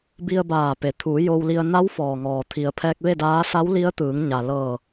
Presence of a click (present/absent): absent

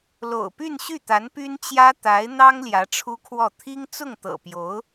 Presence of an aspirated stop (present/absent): present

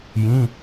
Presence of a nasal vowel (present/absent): present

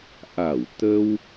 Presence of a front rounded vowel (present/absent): absent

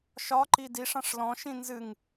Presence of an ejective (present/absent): absent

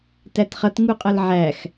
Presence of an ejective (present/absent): present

